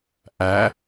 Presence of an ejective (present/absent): absent